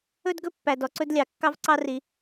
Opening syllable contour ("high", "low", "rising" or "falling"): high